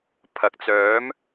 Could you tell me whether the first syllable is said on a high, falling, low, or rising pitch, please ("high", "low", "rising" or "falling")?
rising